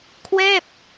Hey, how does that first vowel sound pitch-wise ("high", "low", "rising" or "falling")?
falling